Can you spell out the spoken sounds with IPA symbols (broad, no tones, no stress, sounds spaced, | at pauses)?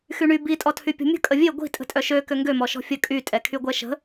x y ɳ y b i tʼ ɔ tʰ y pʲ ɔ̤ mʲ ə̤ kʼ ə vʲ e ɡʷ i̤ tʼ ə̤ tʼ œ ʃ ø k ø ŋ ɡ ø m ɔ ʃ ɔ̤ fʲ ə kʼ y tʼ ɛ kʰ y ɡʷ ɛ ʃ ə̤